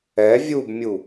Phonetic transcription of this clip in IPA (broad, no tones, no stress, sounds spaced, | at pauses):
ɛ vʲ u b mʲ u